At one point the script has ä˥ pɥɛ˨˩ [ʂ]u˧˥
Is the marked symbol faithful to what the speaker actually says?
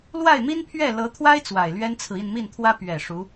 yes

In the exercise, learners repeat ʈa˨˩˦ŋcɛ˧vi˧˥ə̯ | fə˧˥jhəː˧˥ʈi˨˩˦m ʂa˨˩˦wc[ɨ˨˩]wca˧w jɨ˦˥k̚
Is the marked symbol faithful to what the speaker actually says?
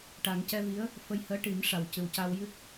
yes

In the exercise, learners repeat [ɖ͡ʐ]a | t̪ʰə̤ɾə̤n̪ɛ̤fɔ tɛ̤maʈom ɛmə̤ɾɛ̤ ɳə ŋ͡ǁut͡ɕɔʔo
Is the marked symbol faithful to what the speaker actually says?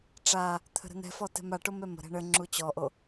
no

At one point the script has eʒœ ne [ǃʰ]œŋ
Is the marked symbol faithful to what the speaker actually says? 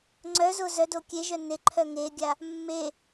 yes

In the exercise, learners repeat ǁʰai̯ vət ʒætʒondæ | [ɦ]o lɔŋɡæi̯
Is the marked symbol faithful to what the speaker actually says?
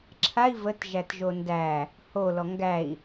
no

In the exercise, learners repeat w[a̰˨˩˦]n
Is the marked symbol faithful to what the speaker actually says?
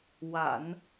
yes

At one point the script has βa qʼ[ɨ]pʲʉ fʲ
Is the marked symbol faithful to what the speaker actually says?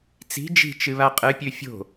yes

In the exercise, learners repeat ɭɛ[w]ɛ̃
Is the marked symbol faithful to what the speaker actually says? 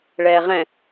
no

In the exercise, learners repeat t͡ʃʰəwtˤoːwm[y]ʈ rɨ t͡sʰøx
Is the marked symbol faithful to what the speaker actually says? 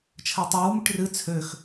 yes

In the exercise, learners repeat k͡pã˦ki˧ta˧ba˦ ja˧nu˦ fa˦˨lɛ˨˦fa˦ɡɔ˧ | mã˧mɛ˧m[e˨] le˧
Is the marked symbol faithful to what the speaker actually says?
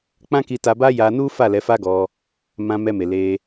yes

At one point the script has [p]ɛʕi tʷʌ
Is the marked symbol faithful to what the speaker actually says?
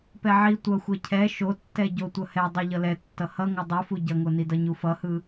yes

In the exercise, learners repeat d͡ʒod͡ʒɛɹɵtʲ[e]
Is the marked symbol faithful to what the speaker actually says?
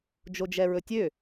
no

